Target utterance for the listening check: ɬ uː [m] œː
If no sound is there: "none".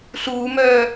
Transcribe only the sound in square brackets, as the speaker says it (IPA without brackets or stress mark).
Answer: m